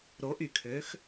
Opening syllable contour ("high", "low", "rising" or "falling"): rising